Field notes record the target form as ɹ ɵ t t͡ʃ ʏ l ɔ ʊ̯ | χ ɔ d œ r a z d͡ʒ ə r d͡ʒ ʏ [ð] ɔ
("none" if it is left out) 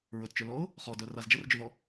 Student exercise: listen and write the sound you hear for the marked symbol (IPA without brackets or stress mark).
ð